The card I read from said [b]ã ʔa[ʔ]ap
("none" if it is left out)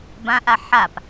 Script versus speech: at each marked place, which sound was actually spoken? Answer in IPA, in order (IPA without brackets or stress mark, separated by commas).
b, ħ